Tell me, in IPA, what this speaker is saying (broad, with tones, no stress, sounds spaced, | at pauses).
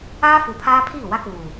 aː˦ f uː˨ pʰ aː˦ pʰ iː˦˨ w a˦ k uː˨